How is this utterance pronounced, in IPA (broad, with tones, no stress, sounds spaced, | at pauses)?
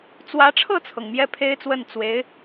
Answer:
t͡s w ä˧˥ ʈ͡ʂʰ ɤ˥˩ t͡sʰ ɤ˩ ŋ m j ɛ˥˩ pʰ e˥ ɪ̯ t͡s w ə˥˩ n t͡s w e˧˥ ɪ̯